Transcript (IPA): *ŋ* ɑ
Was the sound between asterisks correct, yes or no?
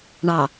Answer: no